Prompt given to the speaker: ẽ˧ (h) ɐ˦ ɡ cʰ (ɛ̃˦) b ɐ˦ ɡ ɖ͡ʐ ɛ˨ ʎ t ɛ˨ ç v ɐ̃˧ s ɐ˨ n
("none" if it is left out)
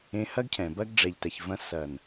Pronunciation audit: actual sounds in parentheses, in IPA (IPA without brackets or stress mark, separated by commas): h, ɛ̃˨